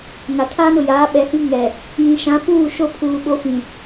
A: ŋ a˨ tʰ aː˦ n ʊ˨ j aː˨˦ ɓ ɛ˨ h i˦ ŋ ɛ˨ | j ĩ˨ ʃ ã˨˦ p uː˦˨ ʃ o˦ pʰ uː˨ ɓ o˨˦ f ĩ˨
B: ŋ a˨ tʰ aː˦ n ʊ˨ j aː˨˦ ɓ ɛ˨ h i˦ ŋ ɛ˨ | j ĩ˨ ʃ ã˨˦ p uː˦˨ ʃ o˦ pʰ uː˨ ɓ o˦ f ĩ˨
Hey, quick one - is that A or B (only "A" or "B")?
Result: A